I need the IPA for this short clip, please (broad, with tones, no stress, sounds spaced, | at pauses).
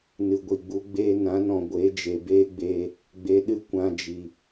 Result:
n ɨ˨ ɡʷ i˨ ɡ͡b u˧ ɡ͡b eː˦ n ã˨˦ n ɔ̃˨ ɡʷ e˨˦ d͡ʒ e˨ b eː˦ ɡ͡b eː˧ | ɡ͡b e˧ ɗ ɨ˦ kʷ ã˧ d͡ʒ i˨